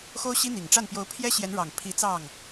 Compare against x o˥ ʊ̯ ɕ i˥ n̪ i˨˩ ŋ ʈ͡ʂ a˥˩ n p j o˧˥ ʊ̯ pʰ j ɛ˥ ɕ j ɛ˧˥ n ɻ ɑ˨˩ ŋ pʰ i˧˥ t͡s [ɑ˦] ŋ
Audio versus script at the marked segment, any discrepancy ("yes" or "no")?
yes